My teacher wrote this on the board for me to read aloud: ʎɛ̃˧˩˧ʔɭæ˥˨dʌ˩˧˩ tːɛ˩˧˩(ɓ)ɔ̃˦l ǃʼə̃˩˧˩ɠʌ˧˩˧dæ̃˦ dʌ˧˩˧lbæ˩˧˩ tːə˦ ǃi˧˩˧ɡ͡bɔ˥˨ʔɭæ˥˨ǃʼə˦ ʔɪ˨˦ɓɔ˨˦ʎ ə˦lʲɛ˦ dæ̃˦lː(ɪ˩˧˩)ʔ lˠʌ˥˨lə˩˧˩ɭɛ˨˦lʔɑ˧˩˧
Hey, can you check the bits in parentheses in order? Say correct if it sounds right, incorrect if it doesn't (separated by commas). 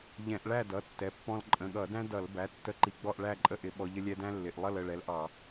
incorrect, correct